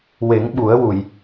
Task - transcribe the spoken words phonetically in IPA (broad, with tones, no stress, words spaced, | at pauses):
we˨˩˦ŋɓu˨˩˦ə̯wu˨˩˨j